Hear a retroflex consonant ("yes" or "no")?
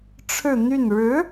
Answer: yes